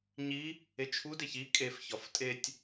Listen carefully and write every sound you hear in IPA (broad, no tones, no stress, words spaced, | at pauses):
ɲi | et͡ʃʰudeç i kʼefçɒf tʼetʲ